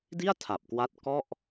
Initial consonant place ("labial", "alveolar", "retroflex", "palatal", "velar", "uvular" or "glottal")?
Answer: alveolar